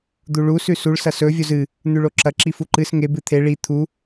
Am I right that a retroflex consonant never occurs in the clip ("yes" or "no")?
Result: no